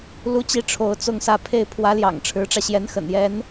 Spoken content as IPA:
l u˥ t͡ɕ i˥ ʈ͡ʂʰ o˧˥ ʊ̯ t͡s ʊ˥˧ ŋ s ä˥˧ pʰ e˥˩ ɪ̯ pʰ w ä˧˥ l j ɑ̰˨˩ ŋ ʈ͡ʂʰ ɻ̩˧˥ ʈ͡ʂ ä˧ ɕ j ɛ˧˥ n x ə̰˨˩ n j ɛ˧˥ n

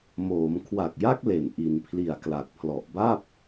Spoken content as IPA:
m oː˩˦ m kʰ w a˨˩ k̚ j a˦˥ k̚ l e˨˩ n ʔ i˩˦ n pʰ l i˨˩ a̯ k l a˨˩ k̚ pʰ l ɔ˨˩ ʔ b a˥˩ p̚

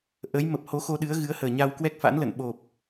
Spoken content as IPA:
ʔ ə˨˦ j m ə˨˩ p̚ h o˨˦ x o˧ ɗ ɨ˨˦ ə̯ ɣ ɨ˨˦ ə̯ h əː˨˩ ɲ a˧ w k w ɛ˦˥ k̚ f a̰˧˥ n l ə̰˧˨ n ɓ o˨˩ p̚

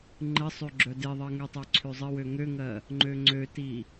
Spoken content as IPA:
ŋ͡ǃ ɘ sˤ ø ɡ͡ǁ œ d e ðˤ ɜ ŋ ø tˤ œ ǀʰ ø zˤ ɘ w ø ŋ ø ŋ ɜ | ŋ͡ǃ ø ŋ͡ǀ ø t i

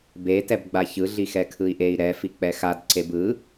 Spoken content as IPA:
b e t ɛ b ɡ͡b a ç ɯ ɮ i x ɛ kʰ ɯ i̯ ʔ e i̯ ɾ ɛ f i k͡p ɛ x a d ǀ e b ɯ

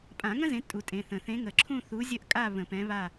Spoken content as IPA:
pʼ ã˨˩˦ ŋ ə̃˥ z ẽ˨˥ tʼ u˩˧˩ tʼ ẽ˩˧˩ θ ə̃˨˩˦ θ ẽ˨˥ ŋ ə˨˩˦ ǁʰ ũ˥˨ θ u˨˥ zʲ ə˥˨ ʔ kʼ a˥˨ β ə̃˨˩˦ p ɛ̃˨˥ β a˥˨

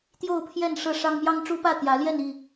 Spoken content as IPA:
t̪ j o˥˨ ʊ̯ pʰ j ɛ˥˨ n ʂ ɤ˥˨ ʂ ɑ˦ ŋ m j ɑ˦ ŋ ʈ͡ʂ u˦ p ä˥˨ t̪ j ä˨˦ l j ɛ˥˨ n i˥˨

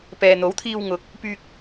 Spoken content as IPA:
p ɛː˨ n̪ o˨˥ w t̪ʰ iː˧ w ŋ ʊ˨˥ k̚ | p yː˧ k̚

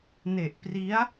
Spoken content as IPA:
n e˨˩ ʔ p r i˦˥ a̯

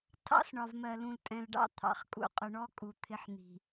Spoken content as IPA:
tʰ ɑ̰˦ s ɳ ɒ˨ v m ɜ˨ l ũ˨ l tʼ ɛ̃˨ l ɖ ɑ̰˦ t̪ʰ ɑ̰˨ χ kʼ ṵ˨ qʼ ʊ˨ ɳ ɔ˦ kʼ u˨ t̪ʰ ɪ˦ ħ n̪ i̤˨

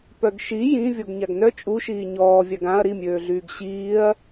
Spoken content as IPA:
p œ ɡ ʃ i j ĩ vʲ ɔ ɡ ɲ a ɡ n œ t͡ʃʼ u ʃ iː ɲ ɔː vʲ a ɡ ã ɐ̯ ɾ i mʲ øː ɮ yː ɡ ɕ iː ɐ̯

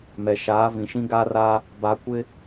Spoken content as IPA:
m ɛ˨ ʃ aː˨˦ v ĩ˨ ʃ ĩ˦ ɡ a˦ r aː˦ | b a˨ kʷ ɪ˦

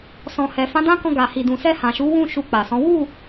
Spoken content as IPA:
s ɔ̃˨ h ɛ˨ f ã˨˦ d ã˦ k ɔ̃˧ ɡ a˨ h i˨ d ũ˨ s ɛ˧ h ã˨ ʃ u˨˦ w ũ˦˨ ʃ u˧ k͡p a˨ s ɔ̃˨˦ w u˦˨

